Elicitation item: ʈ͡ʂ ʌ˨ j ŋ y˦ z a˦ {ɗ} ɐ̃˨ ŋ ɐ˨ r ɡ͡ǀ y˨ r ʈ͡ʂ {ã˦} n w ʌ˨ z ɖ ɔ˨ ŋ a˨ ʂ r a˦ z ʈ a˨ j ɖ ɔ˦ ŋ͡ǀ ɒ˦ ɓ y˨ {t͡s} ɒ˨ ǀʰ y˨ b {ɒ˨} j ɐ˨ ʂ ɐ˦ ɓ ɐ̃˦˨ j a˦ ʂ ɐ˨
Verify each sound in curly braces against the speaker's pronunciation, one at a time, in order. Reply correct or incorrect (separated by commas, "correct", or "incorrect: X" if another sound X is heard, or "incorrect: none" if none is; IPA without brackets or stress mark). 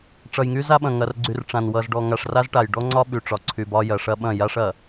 incorrect: ɓ, incorrect: ã˨, incorrect: ʈ͡ʂ, incorrect: ɒ˦